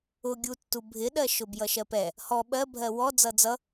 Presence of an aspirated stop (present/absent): absent